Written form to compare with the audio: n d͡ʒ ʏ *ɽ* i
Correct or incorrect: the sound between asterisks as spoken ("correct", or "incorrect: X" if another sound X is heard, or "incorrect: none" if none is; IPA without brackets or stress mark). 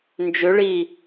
incorrect: ɭ